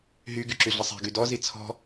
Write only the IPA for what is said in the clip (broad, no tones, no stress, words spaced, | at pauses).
ɦy ɡyǁyɮəsˤɛ̤ ɡydɔ zit͡sʰɔ̤